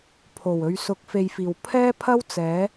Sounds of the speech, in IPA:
pʰo˨˩wɵ˨ɥ sʊ˨˥k̚fe˨jfiː˨˩w pʰɛː˥pʰɐ˥w t͡sɛː˨˥

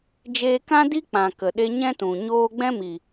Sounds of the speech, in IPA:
d͡ʒeː˧kã˦ di˦k͡pã˨ kə˨ɗe˧ɲɛ̃˦tũ˨ ɲoː˧ɡ͡bɛ̃˦mi˨

